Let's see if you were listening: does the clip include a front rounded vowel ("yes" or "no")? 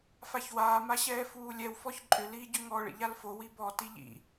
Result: yes